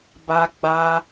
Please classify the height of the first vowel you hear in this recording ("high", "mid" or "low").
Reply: low